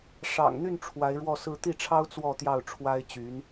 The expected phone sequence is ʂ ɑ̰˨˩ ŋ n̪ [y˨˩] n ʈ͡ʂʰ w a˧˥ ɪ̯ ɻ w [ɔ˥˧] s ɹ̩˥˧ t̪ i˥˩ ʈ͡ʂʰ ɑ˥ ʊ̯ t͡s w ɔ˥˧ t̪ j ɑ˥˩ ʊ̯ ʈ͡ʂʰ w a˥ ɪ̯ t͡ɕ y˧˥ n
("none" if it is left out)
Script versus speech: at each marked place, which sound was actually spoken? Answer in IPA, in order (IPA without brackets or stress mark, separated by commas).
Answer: y˥˩, ɔ˥˧